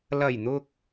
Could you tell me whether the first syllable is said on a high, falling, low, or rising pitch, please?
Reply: low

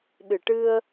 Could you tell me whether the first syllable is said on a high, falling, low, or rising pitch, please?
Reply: low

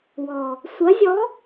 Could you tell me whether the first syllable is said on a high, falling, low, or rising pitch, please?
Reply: low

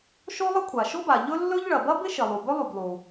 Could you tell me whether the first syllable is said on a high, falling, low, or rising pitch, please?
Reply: high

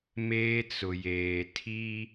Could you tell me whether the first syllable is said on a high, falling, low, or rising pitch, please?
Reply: high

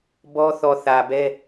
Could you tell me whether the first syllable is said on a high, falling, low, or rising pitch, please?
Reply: high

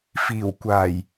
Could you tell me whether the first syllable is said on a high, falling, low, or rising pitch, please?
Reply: low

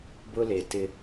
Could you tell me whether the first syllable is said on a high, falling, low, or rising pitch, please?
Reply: high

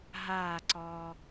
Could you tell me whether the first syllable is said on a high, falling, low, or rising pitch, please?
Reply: falling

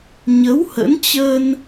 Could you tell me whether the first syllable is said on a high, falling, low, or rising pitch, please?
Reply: rising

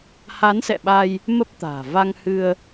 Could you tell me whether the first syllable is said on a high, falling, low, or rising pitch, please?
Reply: rising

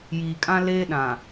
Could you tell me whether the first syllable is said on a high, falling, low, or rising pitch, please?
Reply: low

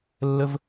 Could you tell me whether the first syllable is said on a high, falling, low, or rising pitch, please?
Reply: high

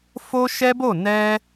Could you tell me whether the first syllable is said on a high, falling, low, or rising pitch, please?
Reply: high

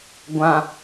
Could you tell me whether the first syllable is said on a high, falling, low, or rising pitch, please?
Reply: low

